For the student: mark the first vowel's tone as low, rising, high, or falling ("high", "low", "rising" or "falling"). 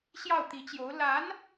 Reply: falling